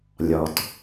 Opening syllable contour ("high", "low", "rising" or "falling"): low